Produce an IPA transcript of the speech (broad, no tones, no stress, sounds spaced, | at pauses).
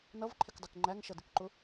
n ʌ v ǃʰ ɪ k dˤ u k ŋ͡ǃ æ ŋ ʃ ʌ d ɪ k ǃ ʊ